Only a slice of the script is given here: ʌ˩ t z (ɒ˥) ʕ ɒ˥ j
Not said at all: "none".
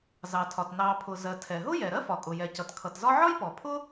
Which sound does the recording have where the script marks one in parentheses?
ɒ˥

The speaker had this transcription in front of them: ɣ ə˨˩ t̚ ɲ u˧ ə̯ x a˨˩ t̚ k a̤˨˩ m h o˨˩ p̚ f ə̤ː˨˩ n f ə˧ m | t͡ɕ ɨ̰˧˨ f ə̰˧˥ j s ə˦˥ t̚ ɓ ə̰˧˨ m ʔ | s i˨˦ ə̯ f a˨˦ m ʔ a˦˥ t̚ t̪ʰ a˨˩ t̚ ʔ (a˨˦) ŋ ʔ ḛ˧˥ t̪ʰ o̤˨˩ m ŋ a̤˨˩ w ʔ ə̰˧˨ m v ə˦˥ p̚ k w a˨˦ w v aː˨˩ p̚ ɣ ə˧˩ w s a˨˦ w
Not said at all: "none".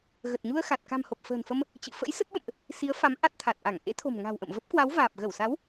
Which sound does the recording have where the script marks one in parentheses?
a˧˩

